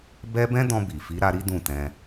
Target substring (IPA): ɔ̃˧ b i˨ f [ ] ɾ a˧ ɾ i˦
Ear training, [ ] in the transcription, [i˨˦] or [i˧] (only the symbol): i˨˦